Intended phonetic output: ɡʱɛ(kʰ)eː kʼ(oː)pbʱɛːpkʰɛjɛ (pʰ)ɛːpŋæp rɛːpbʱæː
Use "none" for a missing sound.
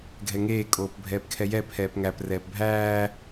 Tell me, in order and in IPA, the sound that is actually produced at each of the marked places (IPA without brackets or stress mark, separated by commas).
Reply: ŋ, oː, pʰ